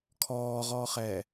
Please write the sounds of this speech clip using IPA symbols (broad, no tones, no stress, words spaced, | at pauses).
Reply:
kʰɔːʁɔːχɛː